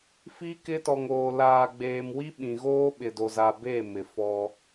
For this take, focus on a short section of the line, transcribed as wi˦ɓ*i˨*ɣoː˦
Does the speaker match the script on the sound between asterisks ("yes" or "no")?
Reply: no